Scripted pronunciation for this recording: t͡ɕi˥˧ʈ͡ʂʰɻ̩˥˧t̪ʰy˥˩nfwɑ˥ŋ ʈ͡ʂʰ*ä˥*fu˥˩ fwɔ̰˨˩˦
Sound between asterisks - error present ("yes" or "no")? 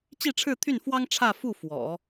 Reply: yes